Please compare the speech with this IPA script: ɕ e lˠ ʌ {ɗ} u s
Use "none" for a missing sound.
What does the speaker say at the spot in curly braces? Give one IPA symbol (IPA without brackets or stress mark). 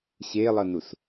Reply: n